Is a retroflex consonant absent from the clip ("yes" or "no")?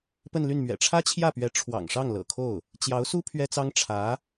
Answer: no